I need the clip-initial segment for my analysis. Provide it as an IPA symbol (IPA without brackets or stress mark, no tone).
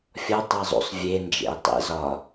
fʲ